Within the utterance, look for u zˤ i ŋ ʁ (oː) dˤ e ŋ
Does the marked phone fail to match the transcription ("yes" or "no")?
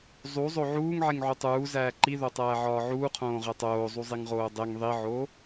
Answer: no